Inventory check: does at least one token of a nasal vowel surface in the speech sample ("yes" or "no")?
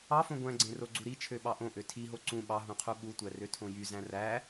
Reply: yes